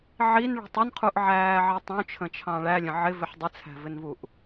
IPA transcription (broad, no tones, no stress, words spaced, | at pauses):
ʕinɭṳtˤ ʊnqʰuʔʕæːʕi tˤũt͡ʃʰə̃t͡ʃʰɑ̃ ɭælʲə̃ ʕɪvɪħ dˤɪt͡sʰæ̤vɪnvuʔ